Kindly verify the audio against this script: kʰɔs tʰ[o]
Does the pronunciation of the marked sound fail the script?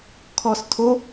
no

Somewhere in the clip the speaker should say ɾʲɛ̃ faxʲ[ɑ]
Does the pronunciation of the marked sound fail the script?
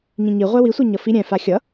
yes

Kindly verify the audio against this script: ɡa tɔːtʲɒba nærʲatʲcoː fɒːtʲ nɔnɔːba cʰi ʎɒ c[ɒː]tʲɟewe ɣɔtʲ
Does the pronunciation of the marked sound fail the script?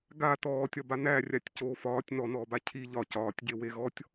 no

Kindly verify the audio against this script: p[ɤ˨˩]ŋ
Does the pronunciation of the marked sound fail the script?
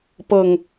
no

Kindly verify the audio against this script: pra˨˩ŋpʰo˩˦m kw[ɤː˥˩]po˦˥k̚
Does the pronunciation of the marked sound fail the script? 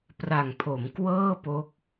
no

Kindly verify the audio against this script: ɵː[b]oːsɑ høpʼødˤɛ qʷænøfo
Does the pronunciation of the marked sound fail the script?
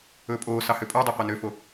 yes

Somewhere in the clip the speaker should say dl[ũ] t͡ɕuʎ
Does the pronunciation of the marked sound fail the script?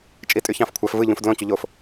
yes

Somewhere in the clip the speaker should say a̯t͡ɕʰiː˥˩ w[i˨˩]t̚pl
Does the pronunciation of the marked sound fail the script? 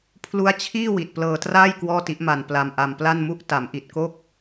no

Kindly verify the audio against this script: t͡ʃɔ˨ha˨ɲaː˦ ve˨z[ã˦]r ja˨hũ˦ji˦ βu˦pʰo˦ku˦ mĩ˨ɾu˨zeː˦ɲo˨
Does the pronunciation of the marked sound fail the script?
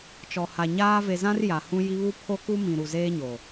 no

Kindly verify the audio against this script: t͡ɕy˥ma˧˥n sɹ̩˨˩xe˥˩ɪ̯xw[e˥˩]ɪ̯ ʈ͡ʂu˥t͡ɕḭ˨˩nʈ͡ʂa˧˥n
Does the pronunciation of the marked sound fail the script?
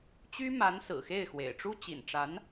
yes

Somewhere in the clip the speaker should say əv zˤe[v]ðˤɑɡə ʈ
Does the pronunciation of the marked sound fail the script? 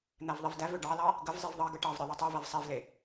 no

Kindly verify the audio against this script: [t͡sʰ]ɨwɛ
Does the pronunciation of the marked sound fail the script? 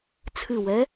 no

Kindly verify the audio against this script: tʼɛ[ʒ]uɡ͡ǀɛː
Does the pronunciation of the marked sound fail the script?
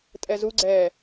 yes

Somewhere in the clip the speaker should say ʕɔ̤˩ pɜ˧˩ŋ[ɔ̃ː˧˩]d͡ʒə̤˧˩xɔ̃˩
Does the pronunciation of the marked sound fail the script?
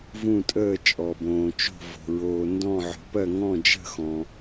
yes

